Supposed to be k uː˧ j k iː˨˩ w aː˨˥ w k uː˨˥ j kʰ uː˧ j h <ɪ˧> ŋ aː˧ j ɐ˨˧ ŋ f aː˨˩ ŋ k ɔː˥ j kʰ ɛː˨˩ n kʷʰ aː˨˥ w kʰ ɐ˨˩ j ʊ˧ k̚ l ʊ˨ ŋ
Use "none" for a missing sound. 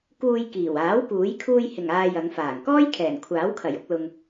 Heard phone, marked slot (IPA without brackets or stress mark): ɪ˨˩